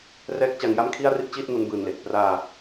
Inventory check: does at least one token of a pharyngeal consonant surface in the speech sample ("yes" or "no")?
no